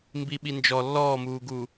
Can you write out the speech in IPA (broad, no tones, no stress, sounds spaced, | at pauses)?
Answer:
m b i ɓ i n d͡ʒ ɔ lː ɔː m uː ɡ u